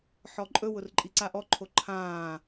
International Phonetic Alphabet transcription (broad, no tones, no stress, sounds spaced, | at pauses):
ħ ɔ ǃʼ ɵ w ʊ r ǃʼ i ǀ a ʔ ɔ ǃʰ o ǃʰ ãː